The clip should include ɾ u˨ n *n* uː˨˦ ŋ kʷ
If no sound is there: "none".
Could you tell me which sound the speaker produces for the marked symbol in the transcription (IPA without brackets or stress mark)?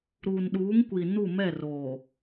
ɗ